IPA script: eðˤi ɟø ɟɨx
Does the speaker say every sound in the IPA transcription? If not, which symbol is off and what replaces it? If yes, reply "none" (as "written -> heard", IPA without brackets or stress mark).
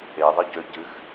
none